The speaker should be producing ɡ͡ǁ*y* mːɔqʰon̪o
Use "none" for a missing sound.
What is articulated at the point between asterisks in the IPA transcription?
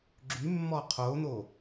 y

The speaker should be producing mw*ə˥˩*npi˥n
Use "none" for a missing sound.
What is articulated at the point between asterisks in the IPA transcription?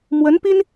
ə˧˥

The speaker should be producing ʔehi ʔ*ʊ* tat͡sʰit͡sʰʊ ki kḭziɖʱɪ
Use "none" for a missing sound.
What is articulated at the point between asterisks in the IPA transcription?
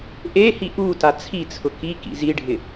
u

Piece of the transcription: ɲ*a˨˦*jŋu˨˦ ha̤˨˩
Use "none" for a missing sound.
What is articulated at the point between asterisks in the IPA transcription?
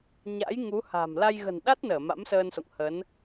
a̰˧˥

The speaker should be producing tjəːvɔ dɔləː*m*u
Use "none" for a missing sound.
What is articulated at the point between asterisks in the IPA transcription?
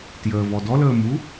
m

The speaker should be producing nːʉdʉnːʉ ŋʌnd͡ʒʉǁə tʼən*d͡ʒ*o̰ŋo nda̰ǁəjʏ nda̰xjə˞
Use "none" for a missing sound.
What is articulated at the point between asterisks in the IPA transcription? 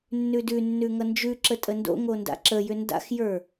d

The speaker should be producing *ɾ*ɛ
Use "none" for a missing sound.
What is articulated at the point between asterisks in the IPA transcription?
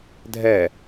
dʱ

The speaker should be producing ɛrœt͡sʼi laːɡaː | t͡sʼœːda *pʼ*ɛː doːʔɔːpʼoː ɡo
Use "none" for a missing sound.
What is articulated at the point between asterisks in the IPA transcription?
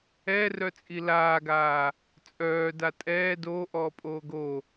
tʼ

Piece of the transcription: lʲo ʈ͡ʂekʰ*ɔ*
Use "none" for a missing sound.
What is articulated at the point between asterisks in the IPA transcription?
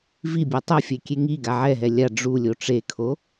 o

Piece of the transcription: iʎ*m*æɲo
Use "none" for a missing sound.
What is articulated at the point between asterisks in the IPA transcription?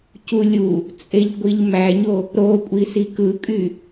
m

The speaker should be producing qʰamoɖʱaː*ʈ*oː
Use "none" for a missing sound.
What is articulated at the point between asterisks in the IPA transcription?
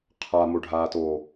t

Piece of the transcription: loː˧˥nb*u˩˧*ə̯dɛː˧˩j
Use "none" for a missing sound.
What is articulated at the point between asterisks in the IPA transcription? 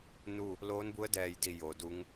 u˧˥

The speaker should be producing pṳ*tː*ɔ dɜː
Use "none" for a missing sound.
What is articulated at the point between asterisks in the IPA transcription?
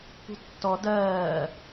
tː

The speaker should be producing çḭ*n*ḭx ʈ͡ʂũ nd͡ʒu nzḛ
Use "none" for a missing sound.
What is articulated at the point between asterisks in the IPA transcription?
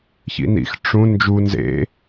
n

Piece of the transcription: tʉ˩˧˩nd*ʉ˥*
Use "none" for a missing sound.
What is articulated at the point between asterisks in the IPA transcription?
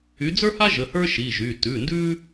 ʉ˥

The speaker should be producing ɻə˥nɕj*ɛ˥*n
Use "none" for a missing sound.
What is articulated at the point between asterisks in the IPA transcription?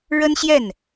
ɛ˥˩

